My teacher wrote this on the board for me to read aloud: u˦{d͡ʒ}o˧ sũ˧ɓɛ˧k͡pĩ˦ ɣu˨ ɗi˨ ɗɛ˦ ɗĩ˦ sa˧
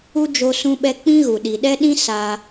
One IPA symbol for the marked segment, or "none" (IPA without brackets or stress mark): d͡ʒ